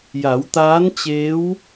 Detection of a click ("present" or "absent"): absent